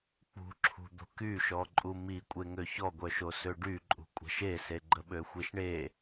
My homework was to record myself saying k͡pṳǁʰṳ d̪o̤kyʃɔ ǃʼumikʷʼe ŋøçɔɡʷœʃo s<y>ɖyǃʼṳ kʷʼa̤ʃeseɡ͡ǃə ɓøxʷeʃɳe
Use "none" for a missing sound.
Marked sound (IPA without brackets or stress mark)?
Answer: ø